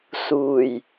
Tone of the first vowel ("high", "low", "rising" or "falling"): low